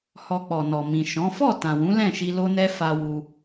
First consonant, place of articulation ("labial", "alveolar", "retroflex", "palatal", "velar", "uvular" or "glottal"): glottal